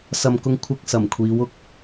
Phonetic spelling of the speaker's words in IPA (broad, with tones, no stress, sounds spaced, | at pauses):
s ɐ˨ m k ʊ˧ ŋ kʷʰ ɪ˧ k̚ s ɐ˨˩ m kʷʰ iː˨˧ w ʊ˥ k̚